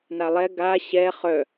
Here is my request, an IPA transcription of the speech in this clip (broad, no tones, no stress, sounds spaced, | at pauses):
n a lˠ ɛ ɡ a ɕ ɛ χ œ